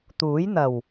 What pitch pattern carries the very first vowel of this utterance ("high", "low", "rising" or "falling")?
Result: rising